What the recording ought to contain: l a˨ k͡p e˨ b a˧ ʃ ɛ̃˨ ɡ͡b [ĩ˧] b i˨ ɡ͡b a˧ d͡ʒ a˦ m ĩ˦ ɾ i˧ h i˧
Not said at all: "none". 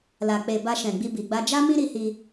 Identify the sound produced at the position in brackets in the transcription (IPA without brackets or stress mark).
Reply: i˧